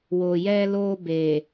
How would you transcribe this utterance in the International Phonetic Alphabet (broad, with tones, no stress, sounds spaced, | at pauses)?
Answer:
w o˨ j ɛ˧ l o˧ b e˨